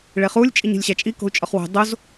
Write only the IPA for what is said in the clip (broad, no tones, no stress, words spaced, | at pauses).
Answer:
ɭeχulʲ t͡ʃʼiɲi̤lʲɕæt͡ʃʼi ko̤u̯t͡ʃʼɒχwo̤ dˤoz